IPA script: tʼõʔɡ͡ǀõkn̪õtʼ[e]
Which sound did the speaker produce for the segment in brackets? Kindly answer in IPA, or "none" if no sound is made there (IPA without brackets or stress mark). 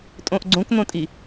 i